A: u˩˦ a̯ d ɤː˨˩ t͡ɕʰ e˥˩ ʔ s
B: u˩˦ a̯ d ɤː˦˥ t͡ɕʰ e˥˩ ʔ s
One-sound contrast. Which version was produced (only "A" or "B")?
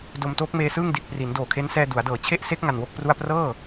A